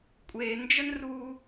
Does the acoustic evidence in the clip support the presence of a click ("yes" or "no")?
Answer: no